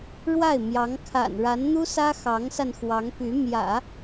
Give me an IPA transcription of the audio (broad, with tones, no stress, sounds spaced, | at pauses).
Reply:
ɻ w a˥˩ ɪ̯ m j ɑ˧˥ ŋ kʰ a̰˨˩ n ɻ a˧˥ n n̪ u˥ s ä˥ x ɑ˧˥ ŋ s a˧ n x w ɑ˧˥ ŋ p y˧˥ m j ä̰˨˩˦